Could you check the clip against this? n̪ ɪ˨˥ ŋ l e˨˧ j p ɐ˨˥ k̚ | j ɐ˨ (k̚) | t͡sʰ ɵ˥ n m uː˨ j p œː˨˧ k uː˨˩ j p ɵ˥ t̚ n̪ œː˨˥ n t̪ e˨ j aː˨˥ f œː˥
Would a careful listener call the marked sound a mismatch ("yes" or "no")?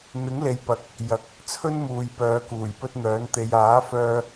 no